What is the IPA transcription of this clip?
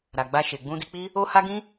ɾ a˨ ɡ͡b a˧ ʃ e˨ ɡ͡b ũ˧ d i˧ k͡p i˦ | o˦ h a˦ ɡ ĩ˦

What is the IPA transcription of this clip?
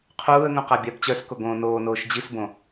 qʰ uː ə̯ ŋ ũ q a bʲ a b t͡ɕ œ s k o ɡ õː n oː n oː ʃ d͡ʑ i s b õ

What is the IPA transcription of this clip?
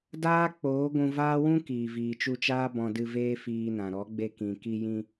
d aː˦ k͡p oː˨˦ ɡʷ ũ˧ v aː˦ w ũ˦ k iː˨ v iː˨ t͡ʃ u˧ t͡ʃ aː˦ b ɔ̃˧ d ɨ˧ v eː˦ f iː˧ n ã˨ ɾ ɔ˨˦ ɡ͡b e˧ k ĩ˨ k i˧ j ĩ˧

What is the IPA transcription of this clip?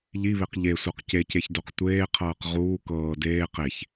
ʎ i β e q ʎ e sʷ ɤ q c e c e ç d o q tʷ eː qʰ ɤː q ʁ uː k ɤː d eː q e ç

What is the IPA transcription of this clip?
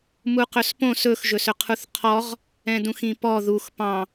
m u q ɵ s p õ s ɵ x ʒ ɵ s ɵ qʰ u θ qʰ ɔ ʁ | ɛ̃ d ũ x ĩ p ɔ ð u x p ɑ̃

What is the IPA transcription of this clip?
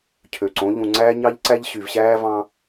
cʰ ø˨ ǀ õ˨˦ ʎ ũ˨ ŋ͡ǀ æː˦ ɲ ɑ˦ ʎ ǀ æ˦ ʎ ɕ y˨ v ɕ æː˦ v ɑ̃˦

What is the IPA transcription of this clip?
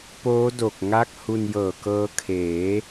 p oː˦˥ d o˨˩ k̚ ŋ a˥˩ k̚ h u˧ n j ɤː˨˩ k ɤː˦˥ kʰ eː˩˦

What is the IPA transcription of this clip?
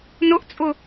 n ʊ ʔ t͡sʼ ʊ

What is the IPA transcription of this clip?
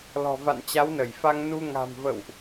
l ɔ̤˨˩ v a̰˧˨ n t͡ɕ a˨˦ w n ə˧˩ j f a˧ ŋ n u˧ ŋ a̤˨˩ m v ə̰˧˨ w ʔ

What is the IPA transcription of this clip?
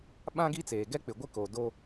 ɓ ã˦ ɡ i˦ t͡s eː˨ ɡ ɛ˦ k͡p ɪ˨ ɡʷ ɪ˦ k o˨ d o˦

